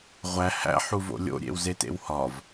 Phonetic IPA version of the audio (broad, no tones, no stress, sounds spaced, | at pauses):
ʁʷ æ h æ̰ ħ u v o̰ lʲ o̰ ɾʲ ḛ w z e t ḛ w h ɒ v